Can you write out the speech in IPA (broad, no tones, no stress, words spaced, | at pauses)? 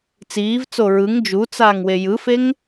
t͡siːvt͡so ɹɯŋ d͡ʒut͡saːŋ wejɯfeŋ